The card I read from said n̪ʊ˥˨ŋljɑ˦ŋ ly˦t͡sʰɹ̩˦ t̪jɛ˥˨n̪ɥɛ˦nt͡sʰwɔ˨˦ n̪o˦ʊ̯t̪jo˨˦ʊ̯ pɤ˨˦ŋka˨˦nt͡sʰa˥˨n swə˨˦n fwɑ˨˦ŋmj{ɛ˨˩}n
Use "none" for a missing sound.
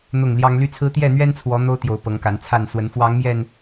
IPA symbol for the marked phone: ɛ˨˩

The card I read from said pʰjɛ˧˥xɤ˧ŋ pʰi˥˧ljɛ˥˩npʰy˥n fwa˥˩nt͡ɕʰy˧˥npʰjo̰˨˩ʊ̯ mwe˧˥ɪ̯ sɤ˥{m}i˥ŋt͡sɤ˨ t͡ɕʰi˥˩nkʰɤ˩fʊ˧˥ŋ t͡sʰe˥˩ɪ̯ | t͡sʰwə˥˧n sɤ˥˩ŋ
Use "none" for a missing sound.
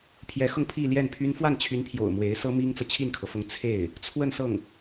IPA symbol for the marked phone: m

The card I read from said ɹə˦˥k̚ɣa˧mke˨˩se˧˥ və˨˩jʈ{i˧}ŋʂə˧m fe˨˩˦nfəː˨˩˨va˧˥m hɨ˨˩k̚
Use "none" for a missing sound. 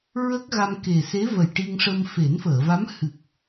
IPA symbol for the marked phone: i˧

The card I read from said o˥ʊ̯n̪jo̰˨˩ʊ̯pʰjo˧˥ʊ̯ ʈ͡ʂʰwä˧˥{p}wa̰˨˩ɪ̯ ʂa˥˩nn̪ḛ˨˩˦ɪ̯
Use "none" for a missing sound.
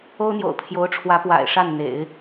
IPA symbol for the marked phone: p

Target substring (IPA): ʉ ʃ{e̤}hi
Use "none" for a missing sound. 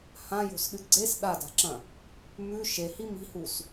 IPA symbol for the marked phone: e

